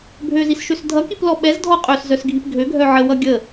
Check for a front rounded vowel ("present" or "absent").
present